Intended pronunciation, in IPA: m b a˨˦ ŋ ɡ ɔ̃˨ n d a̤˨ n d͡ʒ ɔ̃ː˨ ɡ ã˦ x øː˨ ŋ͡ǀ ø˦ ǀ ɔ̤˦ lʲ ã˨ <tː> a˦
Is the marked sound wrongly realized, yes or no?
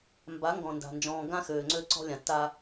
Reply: no